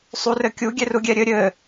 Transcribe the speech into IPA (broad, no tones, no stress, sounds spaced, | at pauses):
sˤ u r ɘ kʲ u ɡʲ ɛ r u ɡʲ ɛ ɾʲ ɘ ɾʲ ɘ